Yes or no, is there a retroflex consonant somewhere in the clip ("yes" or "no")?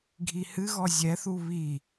no